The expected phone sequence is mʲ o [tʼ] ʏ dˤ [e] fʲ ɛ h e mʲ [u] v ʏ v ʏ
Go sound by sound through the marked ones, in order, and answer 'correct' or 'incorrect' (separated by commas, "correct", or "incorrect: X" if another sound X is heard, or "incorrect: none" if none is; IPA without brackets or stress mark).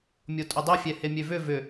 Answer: correct, correct, incorrect: ø